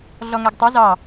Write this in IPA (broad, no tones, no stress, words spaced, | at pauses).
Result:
ɮɔŋæɡtˤu zɑ